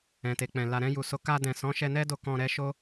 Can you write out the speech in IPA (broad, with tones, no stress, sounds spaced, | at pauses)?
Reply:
ɛ̃˨ t e˨ k͡p ɛ̃˨ l a˨ ɾ ɛ̃˧ j u˨ s o˨˦ k a˧ d ɛ̃˨ s ɔ̃˨˦ ʃ ɛ˧ n ɛ˦ d o˧ k ɔ̃˧ ɾ ɛ˦ ʃ o˦